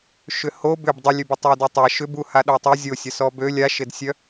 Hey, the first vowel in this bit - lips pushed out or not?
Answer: yes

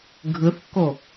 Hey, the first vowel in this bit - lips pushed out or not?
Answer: no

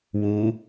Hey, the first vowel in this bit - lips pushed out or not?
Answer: yes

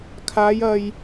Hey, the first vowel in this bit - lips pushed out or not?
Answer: no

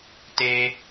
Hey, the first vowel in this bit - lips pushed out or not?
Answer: no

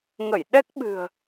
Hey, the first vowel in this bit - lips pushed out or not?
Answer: no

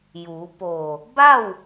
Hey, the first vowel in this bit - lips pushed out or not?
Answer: yes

